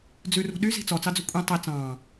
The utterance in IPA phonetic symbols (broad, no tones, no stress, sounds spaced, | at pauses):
d͡z ʉ r ṳ ɗ y z i̤ t͡s ɔ t͡s ɑ d͡z ɵ kʷʼ ĩ tˤ i t͡s ɑ̃ː